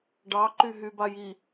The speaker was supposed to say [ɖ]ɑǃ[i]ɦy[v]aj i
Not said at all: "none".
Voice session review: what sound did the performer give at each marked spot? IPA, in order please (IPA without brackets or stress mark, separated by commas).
ɖ, y, b